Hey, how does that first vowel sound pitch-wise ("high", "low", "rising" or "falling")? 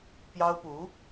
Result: high